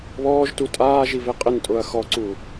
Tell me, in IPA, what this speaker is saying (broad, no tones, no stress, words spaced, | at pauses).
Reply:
βɔːʒtu tʼaːʒive qʼɪn tʼʊɐ̯ xɔǀu